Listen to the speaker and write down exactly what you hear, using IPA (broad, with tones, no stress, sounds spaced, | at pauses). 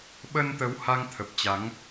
ɓ ə˧ n t̪ ə˨˦ w h a˧ ŋ t̪ʰ ə˨˩ p̚ t͡ɕ a˨˦ ŋ